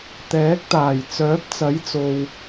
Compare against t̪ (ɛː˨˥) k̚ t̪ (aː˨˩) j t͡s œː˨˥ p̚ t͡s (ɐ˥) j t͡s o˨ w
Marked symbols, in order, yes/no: yes, yes, no

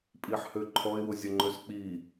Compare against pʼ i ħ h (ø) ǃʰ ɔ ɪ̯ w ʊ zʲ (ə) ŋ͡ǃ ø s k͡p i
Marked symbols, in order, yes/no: yes, yes

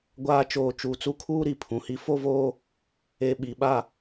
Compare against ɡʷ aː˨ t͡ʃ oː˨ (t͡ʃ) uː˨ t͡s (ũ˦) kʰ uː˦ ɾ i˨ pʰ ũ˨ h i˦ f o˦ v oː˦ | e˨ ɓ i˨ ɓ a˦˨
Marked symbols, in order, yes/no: yes, no

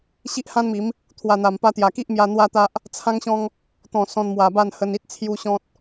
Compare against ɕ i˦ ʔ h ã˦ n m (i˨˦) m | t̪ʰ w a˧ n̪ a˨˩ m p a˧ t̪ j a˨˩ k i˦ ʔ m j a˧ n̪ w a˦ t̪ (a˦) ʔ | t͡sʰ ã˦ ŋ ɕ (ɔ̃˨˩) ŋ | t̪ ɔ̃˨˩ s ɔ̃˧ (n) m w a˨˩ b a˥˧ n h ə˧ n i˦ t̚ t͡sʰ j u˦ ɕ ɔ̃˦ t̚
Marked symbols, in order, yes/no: yes, yes, no, yes

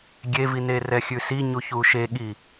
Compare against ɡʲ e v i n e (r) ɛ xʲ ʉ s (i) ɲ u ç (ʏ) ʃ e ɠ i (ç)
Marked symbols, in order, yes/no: yes, yes, no, no

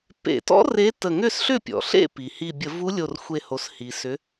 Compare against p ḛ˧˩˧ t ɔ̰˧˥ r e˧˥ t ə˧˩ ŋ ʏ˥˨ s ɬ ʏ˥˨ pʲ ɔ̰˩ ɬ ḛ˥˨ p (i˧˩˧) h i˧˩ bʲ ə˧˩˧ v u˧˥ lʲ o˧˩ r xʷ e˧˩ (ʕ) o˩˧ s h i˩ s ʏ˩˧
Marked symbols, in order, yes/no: no, no

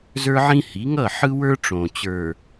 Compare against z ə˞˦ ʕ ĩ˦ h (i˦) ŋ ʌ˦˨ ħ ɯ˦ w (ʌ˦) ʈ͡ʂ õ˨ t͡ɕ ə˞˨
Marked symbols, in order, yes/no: no, no

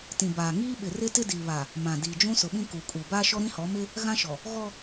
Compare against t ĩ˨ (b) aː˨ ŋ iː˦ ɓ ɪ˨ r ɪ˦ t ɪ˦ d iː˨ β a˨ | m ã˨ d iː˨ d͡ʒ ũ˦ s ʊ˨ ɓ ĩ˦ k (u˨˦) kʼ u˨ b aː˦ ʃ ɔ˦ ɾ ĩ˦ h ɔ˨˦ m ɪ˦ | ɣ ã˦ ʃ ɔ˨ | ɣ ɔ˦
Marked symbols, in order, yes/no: yes, no

